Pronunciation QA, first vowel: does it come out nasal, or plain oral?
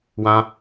nasal